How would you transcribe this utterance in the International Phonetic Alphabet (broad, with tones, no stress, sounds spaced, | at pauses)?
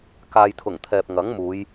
k aː˨ j t̪ʰ ʊ˨˩ ŋ t̪ʰ ɛː˨ p̚ ŋ ɐ˨˥ ŋ m uː˨˧ j